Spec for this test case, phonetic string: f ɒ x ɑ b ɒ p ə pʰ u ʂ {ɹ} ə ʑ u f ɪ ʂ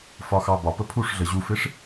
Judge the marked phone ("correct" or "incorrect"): incorrect